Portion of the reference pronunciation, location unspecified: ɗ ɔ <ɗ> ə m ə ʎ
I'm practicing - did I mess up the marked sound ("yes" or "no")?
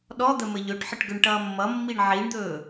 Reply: yes